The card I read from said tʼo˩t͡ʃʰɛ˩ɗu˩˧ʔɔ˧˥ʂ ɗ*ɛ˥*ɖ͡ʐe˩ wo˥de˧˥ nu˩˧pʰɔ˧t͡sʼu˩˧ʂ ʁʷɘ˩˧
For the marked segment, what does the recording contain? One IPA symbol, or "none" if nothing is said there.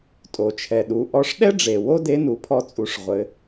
ɛ˥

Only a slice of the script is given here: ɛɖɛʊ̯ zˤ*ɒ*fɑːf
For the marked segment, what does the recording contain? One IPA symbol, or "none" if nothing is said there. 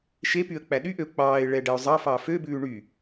ɑ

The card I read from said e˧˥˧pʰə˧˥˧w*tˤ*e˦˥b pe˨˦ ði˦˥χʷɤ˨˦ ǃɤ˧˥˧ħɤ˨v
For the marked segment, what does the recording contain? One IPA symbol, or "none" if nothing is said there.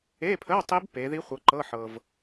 tˤ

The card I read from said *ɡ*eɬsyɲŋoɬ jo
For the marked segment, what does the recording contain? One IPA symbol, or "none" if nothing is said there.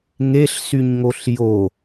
ŋ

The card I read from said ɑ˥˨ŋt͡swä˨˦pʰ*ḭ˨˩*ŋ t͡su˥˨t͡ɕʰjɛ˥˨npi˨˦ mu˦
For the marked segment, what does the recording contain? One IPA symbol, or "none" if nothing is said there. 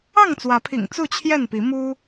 ḭ˨˩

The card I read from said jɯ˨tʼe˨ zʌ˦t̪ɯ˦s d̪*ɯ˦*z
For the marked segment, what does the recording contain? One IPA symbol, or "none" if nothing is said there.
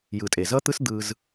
ɯ˦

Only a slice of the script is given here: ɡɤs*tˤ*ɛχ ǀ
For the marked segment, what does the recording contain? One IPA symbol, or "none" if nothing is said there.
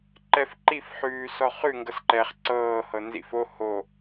ǃ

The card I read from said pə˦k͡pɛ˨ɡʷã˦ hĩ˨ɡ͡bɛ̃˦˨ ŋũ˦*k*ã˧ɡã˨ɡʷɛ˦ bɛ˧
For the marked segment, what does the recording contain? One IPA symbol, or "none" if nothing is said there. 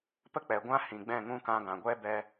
k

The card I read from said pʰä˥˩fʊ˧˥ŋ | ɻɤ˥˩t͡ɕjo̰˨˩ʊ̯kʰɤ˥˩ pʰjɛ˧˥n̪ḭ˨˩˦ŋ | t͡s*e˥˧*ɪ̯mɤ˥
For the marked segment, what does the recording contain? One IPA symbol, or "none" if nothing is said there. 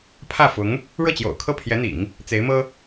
e˧˥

